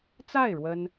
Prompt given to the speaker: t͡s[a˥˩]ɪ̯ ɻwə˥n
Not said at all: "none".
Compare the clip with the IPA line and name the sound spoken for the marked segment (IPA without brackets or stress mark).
a˥˩